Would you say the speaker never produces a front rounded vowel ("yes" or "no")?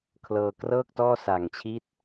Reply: yes